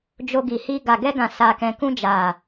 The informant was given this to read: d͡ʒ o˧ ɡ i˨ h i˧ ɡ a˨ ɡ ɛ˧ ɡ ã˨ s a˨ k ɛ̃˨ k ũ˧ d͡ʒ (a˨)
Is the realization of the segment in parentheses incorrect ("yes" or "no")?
no